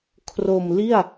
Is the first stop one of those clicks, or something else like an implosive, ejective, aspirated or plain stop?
aspirated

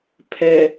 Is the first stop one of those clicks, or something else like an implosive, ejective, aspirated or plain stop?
aspirated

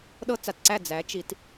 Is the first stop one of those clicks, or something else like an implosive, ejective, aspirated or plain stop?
implosive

